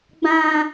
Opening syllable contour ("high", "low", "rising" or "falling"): high